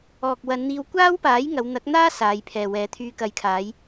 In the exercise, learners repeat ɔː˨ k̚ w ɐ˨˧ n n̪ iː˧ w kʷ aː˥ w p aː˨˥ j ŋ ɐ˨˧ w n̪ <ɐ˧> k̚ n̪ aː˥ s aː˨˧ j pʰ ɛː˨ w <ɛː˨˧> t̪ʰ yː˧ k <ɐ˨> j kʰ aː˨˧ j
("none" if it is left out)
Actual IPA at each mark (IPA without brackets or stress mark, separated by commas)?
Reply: ɐ˨˥, ɛː˨˧, ɐ˨